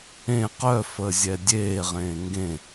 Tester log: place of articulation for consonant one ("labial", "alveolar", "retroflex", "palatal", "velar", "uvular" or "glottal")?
uvular